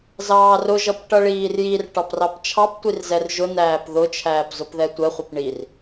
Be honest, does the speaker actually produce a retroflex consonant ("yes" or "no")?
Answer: yes